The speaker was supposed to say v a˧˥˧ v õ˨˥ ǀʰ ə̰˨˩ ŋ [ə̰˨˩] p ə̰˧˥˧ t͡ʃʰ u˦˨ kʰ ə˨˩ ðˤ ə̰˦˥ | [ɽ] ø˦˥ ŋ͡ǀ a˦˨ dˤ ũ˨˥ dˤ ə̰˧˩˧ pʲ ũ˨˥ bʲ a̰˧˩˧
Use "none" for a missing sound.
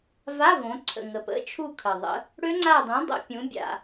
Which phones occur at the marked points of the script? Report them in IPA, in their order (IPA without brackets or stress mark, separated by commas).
ə˨˩, ɽ